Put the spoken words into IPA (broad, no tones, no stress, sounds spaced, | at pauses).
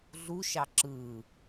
ɮ u ʃ ɑ ǁ ɯ